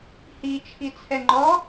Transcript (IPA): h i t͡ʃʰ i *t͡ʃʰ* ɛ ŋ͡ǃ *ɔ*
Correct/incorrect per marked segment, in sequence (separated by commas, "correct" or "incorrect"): incorrect, correct